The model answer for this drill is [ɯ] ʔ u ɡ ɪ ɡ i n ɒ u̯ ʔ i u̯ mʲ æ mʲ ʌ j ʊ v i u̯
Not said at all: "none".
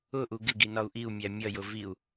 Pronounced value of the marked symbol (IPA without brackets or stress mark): ʊ